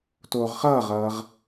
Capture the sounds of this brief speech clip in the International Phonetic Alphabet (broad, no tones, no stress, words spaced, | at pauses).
toːʁχʌːʁʌːʁ